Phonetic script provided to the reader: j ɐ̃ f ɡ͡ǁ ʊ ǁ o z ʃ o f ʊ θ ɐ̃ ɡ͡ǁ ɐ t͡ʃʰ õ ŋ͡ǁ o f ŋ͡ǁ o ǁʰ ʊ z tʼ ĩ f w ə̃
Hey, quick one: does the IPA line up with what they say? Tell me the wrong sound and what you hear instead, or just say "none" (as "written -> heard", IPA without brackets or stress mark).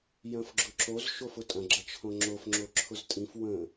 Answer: θ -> tʼ